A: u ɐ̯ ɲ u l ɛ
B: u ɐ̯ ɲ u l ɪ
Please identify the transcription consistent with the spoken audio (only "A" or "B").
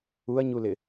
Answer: B